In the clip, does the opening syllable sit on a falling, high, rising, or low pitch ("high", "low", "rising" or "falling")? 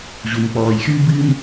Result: low